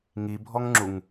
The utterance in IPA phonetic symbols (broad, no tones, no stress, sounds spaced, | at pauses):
ŋ i bʱ ɔ ŋ ŋ͡ǁ u ŋ